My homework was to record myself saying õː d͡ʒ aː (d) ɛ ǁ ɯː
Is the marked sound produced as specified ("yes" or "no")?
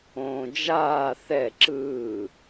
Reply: no